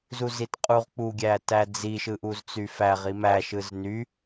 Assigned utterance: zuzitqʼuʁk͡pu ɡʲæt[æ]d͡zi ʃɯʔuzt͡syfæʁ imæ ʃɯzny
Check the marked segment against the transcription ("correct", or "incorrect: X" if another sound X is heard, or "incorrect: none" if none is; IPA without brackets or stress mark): correct